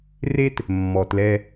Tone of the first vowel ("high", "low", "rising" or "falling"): high